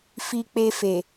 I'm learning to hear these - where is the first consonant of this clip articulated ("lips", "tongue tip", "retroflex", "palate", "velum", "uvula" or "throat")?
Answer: lips